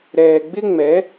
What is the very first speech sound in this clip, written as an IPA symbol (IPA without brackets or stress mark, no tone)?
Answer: ɾ